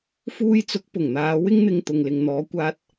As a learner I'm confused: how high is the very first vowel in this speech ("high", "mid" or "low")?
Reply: high